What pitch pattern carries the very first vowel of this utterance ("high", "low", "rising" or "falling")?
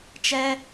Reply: high